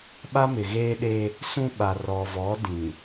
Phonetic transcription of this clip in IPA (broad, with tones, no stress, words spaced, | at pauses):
ɓa˦mɪ˨ɣeː˦ɗe˦ | sũ˦ ɓa˨ rɔ˨vɔ˨˦ dĩ˨